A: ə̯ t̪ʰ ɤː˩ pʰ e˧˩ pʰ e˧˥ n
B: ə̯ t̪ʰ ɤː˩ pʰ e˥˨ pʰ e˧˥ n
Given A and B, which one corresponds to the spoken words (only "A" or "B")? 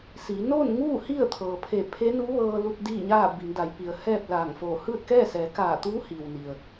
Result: A